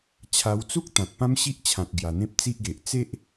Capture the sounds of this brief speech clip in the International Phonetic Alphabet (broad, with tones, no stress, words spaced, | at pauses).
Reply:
t͡ɕʰa˧wt͡su˦k̚ t̪ã˨t̚pã˦mɕi˦ʔt͡ɕʰã˨t̚ ɡja˨˩n̪ẽ˦p̚t͡si˦ʔɡe˨ʔ t͡se˦ʔ